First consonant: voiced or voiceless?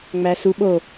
voiced